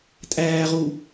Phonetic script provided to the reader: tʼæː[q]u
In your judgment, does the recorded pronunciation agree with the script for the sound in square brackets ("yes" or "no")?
no